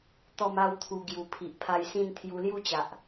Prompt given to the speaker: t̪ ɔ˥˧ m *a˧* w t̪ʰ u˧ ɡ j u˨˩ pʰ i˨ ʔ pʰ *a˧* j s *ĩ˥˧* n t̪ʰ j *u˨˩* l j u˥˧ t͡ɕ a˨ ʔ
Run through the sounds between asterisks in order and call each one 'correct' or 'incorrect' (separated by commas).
incorrect, correct, correct, incorrect